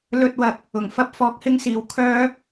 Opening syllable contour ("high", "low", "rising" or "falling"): high